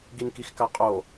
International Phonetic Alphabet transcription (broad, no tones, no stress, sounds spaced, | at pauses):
ɡ i n k i x k a qʼ o